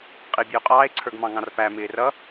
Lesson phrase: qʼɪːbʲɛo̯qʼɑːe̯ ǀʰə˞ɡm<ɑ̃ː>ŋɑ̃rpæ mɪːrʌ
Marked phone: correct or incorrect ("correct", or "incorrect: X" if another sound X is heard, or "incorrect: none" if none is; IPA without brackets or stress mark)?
incorrect: ɑ̃